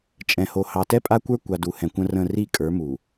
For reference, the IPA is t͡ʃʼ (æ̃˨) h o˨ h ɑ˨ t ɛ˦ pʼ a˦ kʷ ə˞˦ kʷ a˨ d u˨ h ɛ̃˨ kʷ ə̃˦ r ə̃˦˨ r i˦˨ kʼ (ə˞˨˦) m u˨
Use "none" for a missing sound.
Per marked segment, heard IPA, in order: ɛ̃˨, ə˞˨˦

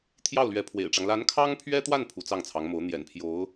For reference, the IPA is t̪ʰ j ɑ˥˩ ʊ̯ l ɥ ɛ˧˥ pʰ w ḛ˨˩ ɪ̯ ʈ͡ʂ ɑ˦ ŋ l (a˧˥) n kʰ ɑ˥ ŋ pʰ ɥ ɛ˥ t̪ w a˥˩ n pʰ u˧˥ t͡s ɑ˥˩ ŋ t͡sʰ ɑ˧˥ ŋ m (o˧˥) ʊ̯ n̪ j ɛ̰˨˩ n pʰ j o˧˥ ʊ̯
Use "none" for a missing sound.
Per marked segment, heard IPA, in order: a˧˥, o˧˥

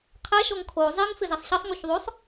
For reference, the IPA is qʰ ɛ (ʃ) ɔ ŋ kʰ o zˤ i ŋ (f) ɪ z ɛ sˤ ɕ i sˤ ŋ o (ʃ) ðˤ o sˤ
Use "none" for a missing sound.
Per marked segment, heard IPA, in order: ʃ, f, ç

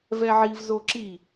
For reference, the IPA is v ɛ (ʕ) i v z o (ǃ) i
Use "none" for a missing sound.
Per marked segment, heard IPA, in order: ʕ, ǁ

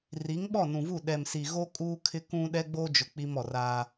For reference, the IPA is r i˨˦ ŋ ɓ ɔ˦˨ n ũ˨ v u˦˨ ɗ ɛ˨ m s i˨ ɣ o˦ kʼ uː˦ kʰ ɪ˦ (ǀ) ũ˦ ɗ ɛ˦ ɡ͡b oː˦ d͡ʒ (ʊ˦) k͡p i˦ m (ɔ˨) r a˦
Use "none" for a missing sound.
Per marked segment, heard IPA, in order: k, ʊ˨, ɔ˨

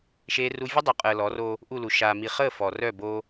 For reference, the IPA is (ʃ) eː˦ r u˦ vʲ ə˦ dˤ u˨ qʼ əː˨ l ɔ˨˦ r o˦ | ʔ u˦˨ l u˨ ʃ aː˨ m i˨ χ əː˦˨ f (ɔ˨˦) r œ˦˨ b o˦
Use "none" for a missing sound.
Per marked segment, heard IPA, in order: ʃ, ɔ˨

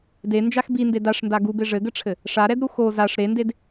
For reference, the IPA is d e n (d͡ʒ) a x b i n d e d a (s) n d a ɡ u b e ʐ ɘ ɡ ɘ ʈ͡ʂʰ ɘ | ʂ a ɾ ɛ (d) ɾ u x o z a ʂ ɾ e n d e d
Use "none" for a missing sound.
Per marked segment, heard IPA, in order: d͡ʒ, ʂ, d

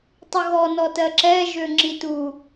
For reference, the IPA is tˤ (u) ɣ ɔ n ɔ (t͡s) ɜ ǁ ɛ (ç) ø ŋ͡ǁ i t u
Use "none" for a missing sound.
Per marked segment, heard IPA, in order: u, t, ʒ

